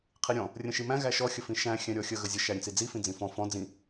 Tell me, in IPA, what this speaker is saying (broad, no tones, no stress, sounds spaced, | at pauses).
qʰ i ɾʲ ɔ̃ | rʲ ə̃ ʃ i m æ̃ ɣ æ ʃ ɔ xʲ ə f ĩ ʃ æ̃ xʲ æ̃ ɾʲ ɔ xʲ ə ɣ ə zʲ ə ʃ æ ɾʲ ə̃ t͡s i d͡z i f ĩ d͡z ĩ f ɔ̃ f ɔ̃ d͡z ĩ